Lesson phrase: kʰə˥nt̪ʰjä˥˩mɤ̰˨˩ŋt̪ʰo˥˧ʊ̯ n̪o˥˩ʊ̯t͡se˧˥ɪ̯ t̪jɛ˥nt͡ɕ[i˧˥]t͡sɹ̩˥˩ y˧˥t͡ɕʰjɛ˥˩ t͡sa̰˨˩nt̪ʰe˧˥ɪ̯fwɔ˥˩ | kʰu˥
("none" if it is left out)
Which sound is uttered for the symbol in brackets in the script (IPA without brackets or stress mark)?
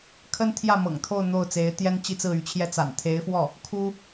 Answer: i˥˧